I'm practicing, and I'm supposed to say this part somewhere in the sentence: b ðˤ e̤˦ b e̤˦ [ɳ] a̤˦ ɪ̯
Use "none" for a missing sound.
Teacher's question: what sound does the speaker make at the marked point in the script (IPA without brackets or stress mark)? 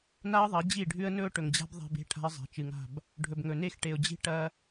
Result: ʈʰ